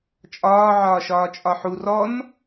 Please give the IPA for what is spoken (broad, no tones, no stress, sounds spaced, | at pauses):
t͡ʃʼ ɒː ʕ ɒː ʃ ɒː t͡ʃʼ ɒ ħ u r ɔ n